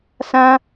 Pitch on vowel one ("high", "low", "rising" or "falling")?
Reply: high